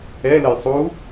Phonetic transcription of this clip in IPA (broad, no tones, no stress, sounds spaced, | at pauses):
ɛ l ə j sˤ u